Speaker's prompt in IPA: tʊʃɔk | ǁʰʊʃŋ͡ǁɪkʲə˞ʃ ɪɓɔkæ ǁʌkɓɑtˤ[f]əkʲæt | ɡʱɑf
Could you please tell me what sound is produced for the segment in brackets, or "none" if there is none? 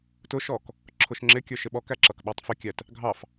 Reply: f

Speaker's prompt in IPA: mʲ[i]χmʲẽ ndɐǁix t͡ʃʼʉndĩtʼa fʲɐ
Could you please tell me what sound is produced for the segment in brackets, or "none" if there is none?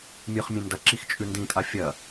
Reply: ɨ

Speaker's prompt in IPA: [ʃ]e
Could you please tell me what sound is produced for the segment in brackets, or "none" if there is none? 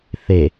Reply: θ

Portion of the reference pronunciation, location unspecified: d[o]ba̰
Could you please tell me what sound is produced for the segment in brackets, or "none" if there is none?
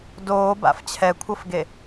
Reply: oː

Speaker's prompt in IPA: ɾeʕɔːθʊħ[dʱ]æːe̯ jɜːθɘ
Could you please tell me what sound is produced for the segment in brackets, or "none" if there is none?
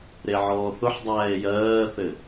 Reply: dˤ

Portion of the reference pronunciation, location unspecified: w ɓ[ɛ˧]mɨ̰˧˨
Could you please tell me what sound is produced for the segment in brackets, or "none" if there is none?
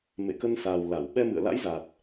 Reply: ɛ˧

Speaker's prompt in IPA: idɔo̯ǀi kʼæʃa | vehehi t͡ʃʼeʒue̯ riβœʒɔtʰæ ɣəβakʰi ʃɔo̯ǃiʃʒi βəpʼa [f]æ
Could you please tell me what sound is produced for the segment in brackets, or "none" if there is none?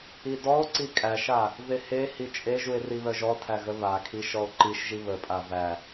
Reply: v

